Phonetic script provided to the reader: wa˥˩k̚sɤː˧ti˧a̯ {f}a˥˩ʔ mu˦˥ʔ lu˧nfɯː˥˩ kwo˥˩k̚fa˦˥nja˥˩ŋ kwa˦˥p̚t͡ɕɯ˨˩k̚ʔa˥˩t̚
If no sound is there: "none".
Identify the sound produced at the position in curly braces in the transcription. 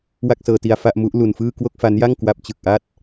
f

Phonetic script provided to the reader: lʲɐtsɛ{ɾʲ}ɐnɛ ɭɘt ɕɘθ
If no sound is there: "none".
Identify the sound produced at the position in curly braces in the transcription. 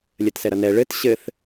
ɾ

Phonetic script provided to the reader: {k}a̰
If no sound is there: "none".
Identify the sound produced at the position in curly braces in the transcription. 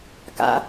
k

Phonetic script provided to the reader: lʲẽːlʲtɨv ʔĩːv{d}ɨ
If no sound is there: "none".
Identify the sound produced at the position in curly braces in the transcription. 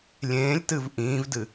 d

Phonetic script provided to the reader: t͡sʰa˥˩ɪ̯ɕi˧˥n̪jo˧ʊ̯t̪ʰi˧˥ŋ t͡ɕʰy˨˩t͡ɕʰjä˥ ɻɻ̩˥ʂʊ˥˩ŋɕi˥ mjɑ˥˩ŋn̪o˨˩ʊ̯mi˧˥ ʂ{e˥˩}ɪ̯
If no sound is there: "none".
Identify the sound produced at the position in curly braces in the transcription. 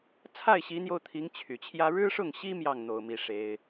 e˥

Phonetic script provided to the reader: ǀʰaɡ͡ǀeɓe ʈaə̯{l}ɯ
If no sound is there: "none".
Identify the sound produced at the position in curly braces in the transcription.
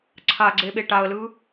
l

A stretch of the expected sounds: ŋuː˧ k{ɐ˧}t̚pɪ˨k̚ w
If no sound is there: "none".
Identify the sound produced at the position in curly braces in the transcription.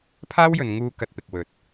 ɐ˧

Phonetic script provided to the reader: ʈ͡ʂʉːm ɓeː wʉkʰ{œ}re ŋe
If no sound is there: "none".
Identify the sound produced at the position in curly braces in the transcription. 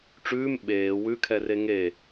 ɛ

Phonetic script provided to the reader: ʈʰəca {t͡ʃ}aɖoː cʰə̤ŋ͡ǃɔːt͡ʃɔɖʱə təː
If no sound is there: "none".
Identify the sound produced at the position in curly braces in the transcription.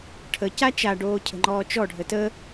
t͡ʃ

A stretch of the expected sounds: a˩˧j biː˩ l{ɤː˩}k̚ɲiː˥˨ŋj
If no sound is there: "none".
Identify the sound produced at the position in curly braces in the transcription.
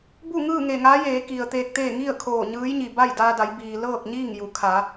ɤː˥˨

